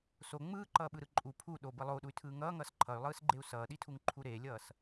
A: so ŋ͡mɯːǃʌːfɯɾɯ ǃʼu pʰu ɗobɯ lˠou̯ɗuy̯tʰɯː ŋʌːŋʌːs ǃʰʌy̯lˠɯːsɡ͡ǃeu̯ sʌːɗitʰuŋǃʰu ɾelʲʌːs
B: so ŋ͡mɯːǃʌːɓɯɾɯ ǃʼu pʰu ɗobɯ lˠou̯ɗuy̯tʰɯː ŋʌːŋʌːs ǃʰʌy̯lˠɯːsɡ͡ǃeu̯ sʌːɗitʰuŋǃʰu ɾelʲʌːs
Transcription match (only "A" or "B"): B